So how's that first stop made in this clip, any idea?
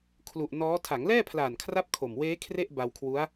aspirated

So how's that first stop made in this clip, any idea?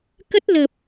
plain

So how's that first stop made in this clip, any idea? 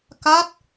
plain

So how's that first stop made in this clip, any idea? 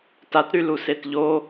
plain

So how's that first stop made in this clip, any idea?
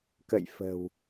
plain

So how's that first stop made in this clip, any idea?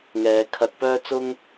aspirated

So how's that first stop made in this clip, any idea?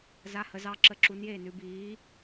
click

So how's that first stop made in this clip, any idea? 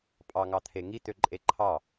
ejective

